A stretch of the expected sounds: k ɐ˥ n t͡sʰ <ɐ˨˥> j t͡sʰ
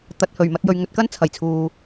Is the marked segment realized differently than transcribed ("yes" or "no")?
yes